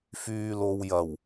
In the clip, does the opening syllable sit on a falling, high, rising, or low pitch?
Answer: low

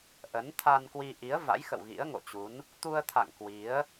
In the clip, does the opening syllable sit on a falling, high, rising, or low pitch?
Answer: rising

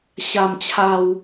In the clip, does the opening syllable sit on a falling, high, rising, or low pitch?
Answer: low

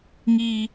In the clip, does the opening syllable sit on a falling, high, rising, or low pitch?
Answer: high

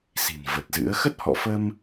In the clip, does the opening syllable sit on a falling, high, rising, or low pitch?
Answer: low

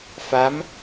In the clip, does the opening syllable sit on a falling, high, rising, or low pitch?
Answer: rising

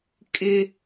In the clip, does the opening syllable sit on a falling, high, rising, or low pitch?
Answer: high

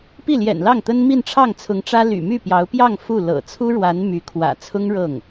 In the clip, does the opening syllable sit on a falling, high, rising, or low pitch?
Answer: falling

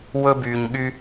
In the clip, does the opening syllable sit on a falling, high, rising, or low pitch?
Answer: high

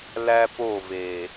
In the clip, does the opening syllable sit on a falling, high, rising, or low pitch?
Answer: high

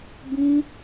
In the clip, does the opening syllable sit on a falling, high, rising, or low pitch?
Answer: high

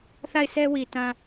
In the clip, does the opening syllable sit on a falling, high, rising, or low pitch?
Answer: falling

